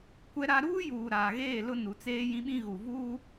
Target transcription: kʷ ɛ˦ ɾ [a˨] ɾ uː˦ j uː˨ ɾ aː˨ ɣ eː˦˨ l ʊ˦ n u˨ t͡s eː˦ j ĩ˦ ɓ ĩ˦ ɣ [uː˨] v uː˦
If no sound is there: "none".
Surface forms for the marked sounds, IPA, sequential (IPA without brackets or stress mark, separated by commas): a˦, u˨